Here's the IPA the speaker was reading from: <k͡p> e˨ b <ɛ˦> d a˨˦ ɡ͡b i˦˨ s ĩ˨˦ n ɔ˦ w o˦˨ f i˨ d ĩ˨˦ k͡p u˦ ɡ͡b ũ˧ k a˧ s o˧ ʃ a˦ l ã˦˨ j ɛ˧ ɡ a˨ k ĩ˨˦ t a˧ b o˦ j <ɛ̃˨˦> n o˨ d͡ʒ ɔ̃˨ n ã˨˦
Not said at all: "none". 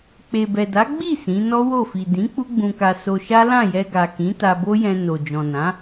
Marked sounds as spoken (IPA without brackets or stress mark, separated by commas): k͡p, ɛ˨, ɛ̃˧